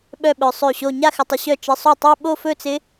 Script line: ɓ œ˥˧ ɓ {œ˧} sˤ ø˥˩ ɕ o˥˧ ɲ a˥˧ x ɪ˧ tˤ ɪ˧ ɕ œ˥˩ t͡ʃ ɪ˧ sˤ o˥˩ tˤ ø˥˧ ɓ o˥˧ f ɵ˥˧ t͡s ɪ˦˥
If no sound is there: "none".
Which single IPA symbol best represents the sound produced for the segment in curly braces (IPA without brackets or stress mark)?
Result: œ˧